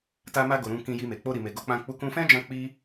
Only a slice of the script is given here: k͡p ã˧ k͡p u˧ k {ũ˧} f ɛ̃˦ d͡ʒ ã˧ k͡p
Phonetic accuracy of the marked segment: correct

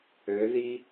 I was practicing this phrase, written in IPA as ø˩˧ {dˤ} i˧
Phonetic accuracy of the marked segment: incorrect: ð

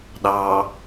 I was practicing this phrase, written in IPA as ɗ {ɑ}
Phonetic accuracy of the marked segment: correct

